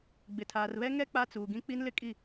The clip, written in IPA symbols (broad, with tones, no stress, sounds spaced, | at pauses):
ɡ͡b ɪ˨ tʰ aː˨ r β ɛ˦ ŋ ɛ˦ k͡p a˦ t͡s uː˨ ɡ ĩ˦ k͡p i˦ n l ɪ˦ kʼ i˦˨